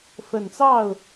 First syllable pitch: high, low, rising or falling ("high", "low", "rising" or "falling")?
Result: low